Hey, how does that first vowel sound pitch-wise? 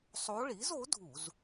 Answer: rising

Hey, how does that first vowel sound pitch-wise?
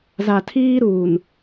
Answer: low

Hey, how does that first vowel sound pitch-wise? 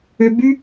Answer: high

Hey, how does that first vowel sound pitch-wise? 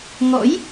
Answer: rising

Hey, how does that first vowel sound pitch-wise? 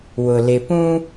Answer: low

